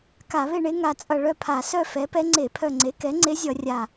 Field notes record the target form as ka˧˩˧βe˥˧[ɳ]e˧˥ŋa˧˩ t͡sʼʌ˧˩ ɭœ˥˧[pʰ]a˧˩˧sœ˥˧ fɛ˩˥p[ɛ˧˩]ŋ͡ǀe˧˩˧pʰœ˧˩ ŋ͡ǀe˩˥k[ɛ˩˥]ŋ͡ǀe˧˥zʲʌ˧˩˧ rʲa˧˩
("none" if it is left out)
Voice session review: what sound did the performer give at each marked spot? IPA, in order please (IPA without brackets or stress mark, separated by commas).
ɳ, pʰ, ɛ˧˥, ɛ˩˥